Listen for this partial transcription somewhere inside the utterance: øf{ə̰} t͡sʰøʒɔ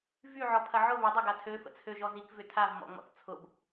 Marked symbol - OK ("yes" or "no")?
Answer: yes